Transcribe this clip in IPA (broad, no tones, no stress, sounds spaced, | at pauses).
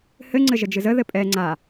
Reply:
h ɘ ŋ͡ǀ ɘ ʒ ə d͡ʒ ɨ z ə ð ɘ pʼ ɛ ŋ͡ǀ a